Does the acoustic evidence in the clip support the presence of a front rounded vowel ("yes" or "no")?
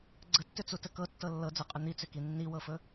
yes